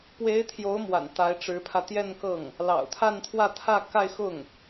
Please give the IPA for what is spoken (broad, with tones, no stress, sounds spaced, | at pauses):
p w e˧˥ ɪ̯ t̪ʰ j o˧˥ ʊ̯ m w a̰˨˩ n t̪ a˧˥ ɪ̯ ʈ͡ʂ ɻ̩˧˥ pʰ ä˧ t̪ j ɛ˥˧ n k ɤ˥˩ ŋ | l ɑ̰˨˩ ʊ̯ t̪ʰ a˥˧ n t̪ʰ w ä˥˧ t̪ʰ ä˥˧ k a˥˧ ɪ̯ x ʊ˥˩ ŋ